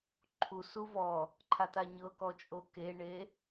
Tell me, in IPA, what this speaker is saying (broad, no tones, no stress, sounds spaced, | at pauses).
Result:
ǃʰ u s u v ɔ | ǃʰ a t a ɲ ɤ k ɔ t͡ʃʼ o k e ɳ e